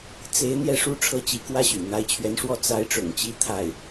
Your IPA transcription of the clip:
t͡se˧˥ɪ̯ n̪jɛ˥˩ʂu˥ʈ͡ʂʰɤ˥˩ t͡ɕi˧˥kwä˥ɕy̰˨˩ n̪a˧˥ɪ̯t͡ɕʰɥɛ˧˥nʂwɔ˥˩ t͡sa˧˥ɪ̯ ʈ͡ʂʊ̰˨˩ŋt͡ɕi˧˥ t̪ʰa˥˩ɪ̯

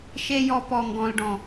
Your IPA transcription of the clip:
ʃe˦jɔ˧pɔ˨ŋɡɔ̃˨l ɖɔ̃˨

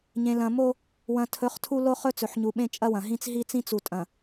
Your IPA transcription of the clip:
ɲẽ˨ lɐ̃˨mo˦ | wɐ̃˨tʰɵ˨˦χ tʰu˦lo˦ χɵ˦t͡sɵ˨ħɲu˨ɓẽ˦ t͡ʃʼɐ˦wɐ̃˨ɦĩ˦t͡s ɦi˦t͡sĩ˦ t͡su˨ tʼɐ̃˨

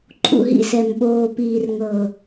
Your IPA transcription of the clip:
ǃʼṵ˨ɦḭ˧sɛ˨m ɓoː˨piː˨r ŋɤ˨

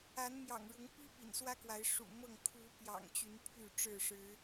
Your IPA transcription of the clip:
a˨˦nmjɑ̰˨˩ŋɻʊ˨˦ŋpi˦ pḭ˨˩nswä˦kwa˨˦ɪ̯ ʂṵ˨˩mɤ˥˨ŋ kʰu˨˦ pjɑ̰˨˩ŋt͡ɕy˨˦n pʰy˥˨ʈ͡ʂɻ̩˥˨ʂɻ̩˨˦

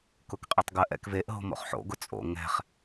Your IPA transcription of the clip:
kʊkqʼetˤɡɜʔ ɛ̰kveʔ ɦo̤mo̰χħo̰ ɡʊt͡sʼo̰ ŋɛ̤χ

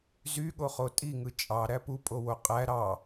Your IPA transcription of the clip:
zyɠoχo tʼiŋɯ t͡ʃʼɑɾæ pupʼowo qʼæ ɾɑ

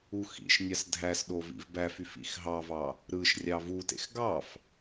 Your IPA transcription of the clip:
uxḭʃnʲɑs dʱæsɗo vḭvbæfyf ḭxɦɑvɑ | ɾɯʃ rʲɑvutḛx ɡɑf

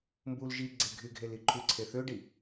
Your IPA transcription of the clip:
mbul ʒiɡ͡ǀe ɡʱyɡʱeli ǃʰyǀʰeθøɖi

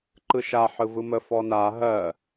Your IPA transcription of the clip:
ǃɯʃa ħɯvɯmə fɔna ɦɜ

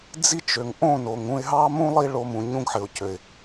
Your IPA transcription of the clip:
d͡zi˦t͡ʃø˨ŋ ʔõ˦˨ no˨ŋ ũ˧ɪ̯ɦɑ˦mũ˦ lˠi˦ɭo˧mũ˨ ɲũ˦ɡħɘ˨ʊ̯cø˨ɪ̯

